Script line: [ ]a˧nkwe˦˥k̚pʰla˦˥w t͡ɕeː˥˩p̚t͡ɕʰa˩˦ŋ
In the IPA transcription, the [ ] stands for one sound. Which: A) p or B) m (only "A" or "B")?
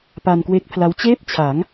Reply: A